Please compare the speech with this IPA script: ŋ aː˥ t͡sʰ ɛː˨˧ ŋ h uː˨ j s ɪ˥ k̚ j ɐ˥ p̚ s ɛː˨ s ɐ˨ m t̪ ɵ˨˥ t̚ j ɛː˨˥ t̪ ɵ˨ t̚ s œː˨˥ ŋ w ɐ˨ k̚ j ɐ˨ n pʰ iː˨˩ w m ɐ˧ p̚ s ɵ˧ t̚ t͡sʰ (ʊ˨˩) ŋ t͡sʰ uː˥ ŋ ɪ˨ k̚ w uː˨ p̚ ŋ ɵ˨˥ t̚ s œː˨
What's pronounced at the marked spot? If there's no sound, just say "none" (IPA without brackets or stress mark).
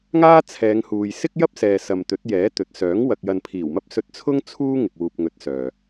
ʊ˥